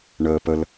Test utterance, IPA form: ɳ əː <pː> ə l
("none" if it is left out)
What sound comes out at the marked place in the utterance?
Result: p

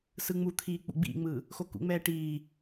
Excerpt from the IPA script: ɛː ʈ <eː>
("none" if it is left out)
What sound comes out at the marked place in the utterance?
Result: iː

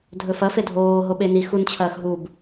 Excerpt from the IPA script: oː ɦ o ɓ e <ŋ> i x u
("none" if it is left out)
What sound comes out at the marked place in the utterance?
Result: n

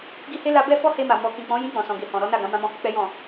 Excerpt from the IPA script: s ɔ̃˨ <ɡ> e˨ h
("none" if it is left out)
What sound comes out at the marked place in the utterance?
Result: ɡ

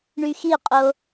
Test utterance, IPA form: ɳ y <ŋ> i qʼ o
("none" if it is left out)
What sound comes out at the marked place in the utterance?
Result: x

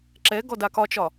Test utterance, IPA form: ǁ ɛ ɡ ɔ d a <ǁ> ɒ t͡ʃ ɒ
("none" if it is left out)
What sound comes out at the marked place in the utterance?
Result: k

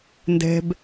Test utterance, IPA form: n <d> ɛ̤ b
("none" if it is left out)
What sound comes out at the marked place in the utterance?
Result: d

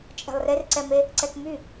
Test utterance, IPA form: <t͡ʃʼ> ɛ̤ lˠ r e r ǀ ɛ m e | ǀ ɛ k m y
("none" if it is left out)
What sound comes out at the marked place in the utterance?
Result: t͡ʃʼ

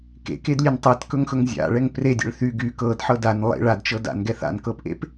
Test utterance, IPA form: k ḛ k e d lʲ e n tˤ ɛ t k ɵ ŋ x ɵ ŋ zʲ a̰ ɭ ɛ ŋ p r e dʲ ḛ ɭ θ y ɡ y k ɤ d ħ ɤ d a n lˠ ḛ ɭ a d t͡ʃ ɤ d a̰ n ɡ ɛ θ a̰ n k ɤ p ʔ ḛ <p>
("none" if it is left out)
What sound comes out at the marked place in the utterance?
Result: p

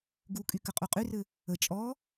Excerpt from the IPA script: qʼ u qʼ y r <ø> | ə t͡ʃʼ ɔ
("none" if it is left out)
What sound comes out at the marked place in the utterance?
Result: ɘ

